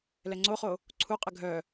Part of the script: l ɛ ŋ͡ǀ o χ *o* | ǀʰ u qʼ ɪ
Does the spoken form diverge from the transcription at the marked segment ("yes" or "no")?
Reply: no